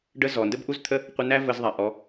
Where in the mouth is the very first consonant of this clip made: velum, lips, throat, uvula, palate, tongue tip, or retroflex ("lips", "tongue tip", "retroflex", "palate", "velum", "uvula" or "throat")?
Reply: retroflex